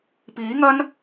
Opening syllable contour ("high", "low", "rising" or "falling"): rising